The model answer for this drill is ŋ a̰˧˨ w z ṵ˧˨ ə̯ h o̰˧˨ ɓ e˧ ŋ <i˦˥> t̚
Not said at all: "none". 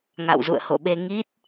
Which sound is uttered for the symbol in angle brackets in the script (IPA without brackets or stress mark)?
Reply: i˦˥